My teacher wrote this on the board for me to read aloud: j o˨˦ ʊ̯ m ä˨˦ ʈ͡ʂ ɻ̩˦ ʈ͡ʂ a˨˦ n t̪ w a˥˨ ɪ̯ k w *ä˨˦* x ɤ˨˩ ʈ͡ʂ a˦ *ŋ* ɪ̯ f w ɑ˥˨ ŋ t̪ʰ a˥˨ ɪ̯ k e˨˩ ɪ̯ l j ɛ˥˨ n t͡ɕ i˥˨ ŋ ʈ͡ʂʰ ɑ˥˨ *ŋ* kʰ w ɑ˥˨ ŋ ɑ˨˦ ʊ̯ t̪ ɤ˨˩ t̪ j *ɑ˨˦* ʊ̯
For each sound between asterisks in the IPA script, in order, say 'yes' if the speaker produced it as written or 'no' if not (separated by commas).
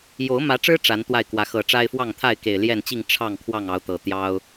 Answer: yes, no, yes, no